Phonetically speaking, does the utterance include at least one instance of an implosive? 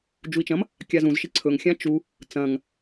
no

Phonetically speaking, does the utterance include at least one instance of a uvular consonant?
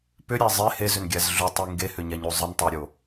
no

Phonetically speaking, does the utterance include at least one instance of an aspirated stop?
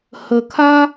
yes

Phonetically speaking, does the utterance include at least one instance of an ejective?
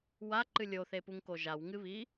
no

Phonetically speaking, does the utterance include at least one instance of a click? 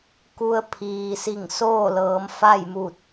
no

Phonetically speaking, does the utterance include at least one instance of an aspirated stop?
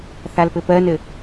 no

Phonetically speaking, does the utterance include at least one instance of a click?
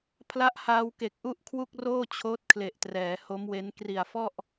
no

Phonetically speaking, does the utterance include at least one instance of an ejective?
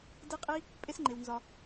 yes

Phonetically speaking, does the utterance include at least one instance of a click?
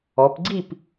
yes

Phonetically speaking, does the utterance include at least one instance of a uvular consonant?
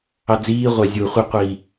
yes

